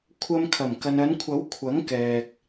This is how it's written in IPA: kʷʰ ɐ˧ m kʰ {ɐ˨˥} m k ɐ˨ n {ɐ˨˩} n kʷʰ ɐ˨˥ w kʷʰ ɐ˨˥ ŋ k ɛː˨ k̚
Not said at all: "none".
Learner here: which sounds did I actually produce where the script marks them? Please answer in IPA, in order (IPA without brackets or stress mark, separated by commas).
ɐ˨˩, ɐ˨˧